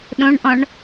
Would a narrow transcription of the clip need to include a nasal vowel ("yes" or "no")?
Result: yes